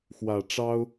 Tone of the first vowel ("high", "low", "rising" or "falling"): low